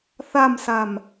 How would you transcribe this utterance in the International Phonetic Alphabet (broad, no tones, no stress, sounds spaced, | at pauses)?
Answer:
θ a m s a m